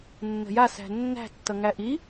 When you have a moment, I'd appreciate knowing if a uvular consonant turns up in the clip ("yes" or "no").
no